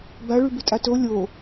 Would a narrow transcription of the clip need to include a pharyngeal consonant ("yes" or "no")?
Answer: no